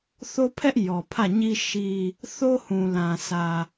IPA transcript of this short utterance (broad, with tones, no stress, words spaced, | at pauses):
θo˦ pʰɛ˦ʔ jɔ˨pʰä˦˨ɲi˦ ʃi˦ | θo˦hũ˨lã˨sʰä˨